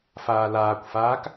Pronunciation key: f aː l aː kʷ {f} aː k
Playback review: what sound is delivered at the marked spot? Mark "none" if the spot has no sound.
f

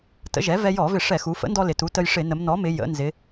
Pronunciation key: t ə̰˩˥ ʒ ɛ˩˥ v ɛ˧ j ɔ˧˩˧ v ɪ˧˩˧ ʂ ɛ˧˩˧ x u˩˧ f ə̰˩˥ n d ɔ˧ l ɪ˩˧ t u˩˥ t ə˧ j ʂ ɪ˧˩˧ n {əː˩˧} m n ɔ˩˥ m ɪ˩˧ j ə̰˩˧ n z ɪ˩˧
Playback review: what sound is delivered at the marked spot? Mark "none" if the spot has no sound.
ə˩˧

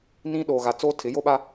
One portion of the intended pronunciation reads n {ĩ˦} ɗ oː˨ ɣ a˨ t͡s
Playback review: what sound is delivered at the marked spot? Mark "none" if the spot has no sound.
ĩ˦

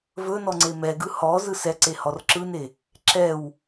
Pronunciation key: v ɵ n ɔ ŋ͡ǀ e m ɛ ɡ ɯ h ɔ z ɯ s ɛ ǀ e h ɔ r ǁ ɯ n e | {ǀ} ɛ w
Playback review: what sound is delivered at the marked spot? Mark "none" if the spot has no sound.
ǁ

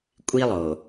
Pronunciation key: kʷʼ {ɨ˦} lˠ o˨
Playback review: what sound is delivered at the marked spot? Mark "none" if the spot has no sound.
i˦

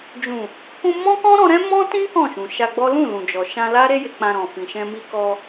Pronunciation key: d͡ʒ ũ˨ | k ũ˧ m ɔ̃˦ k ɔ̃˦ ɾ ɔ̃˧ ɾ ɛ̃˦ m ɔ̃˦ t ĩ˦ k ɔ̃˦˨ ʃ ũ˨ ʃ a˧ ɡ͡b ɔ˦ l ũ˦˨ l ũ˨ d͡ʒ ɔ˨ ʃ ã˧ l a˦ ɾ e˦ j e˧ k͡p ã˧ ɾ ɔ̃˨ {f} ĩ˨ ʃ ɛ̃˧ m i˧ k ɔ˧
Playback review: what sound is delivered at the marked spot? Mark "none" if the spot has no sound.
f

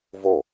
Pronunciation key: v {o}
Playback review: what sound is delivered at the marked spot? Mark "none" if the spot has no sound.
o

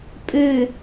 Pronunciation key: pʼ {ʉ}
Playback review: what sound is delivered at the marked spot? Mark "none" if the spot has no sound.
ʉ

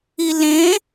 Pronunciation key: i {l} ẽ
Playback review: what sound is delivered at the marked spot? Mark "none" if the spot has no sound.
l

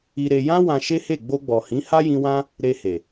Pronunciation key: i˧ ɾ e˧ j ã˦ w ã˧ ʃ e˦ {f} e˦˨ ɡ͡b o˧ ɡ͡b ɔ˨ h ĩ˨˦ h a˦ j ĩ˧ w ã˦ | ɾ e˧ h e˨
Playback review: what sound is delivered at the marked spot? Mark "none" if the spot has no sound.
h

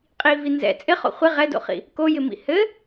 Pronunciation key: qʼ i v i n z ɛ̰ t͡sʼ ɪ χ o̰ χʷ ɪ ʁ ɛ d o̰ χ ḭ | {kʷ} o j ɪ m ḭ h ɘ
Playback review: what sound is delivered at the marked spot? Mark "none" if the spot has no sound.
k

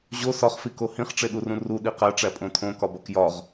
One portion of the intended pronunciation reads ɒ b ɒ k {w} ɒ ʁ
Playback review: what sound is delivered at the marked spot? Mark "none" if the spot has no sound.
j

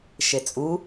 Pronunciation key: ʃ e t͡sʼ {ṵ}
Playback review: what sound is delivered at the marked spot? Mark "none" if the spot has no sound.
u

